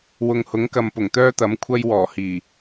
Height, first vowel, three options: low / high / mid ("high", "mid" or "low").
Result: high